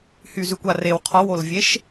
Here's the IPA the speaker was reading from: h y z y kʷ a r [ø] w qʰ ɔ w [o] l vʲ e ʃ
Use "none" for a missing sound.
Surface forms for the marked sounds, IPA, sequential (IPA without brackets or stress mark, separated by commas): e, o